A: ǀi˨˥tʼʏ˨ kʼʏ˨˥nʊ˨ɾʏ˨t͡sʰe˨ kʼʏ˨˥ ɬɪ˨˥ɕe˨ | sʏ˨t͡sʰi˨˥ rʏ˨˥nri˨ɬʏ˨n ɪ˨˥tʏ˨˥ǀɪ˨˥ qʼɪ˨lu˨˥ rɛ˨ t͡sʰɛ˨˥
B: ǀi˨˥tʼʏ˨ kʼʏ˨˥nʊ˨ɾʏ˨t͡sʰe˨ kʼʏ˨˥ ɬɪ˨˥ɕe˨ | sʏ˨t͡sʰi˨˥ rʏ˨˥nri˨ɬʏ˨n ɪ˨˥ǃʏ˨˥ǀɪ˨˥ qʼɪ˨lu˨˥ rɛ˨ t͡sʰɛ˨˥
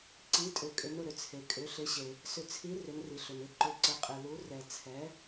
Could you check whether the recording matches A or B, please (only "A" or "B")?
B